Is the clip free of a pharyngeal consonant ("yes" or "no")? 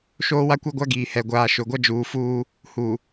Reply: yes